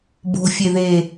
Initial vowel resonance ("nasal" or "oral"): oral